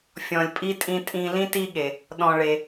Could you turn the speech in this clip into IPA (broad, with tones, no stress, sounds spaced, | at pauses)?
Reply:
fʲ ɔ̃˨ lʲ pʼ i˥ tʼ ĩ˦ tʼ ĩ˦ l ĩ˥ t i˦ ɠ e˩ | ɗ ɔ̃˨ ɭ e˩